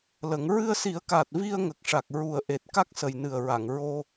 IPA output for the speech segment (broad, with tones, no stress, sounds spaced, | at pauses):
l ə˨˩˦ ŋ ɹ ɨ˧ ə̯ s i˨˩˦ ə̯ k aː˨˩ t̚ v i˧ ə̯ ŋ ə˨˩ k̚ ʂ a˨˩ k̚ ɹ u˨˩ ə̯ ʔ e˨˩ t̚ k a˦˥ k̚ s ə˨˩ j n ɨ˨˩ ə̯ ɹ a˨˩˨ ŋ ɹ o˧